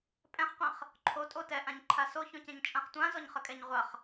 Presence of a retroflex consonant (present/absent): absent